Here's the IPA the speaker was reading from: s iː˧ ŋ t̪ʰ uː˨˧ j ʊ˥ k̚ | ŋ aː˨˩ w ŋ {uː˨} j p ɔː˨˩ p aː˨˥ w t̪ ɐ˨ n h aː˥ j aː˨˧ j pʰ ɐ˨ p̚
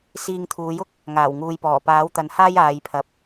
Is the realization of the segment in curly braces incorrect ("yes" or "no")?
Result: no